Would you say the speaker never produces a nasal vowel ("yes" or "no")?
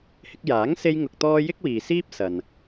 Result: yes